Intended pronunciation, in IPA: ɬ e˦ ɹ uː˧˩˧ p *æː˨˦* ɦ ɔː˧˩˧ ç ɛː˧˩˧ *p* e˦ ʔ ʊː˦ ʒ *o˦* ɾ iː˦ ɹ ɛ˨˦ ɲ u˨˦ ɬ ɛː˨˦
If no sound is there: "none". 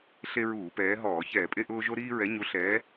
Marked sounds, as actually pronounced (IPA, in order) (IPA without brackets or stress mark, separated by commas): ɛː˨˦, pʼ, o˦